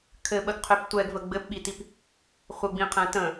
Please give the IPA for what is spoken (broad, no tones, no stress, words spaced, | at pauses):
kʰɘɓəɡqʰøp tʷɛɡvə ɡ͡bɘpɓitip | χʷəɡ͡bĩqʰɛ̃ tə̃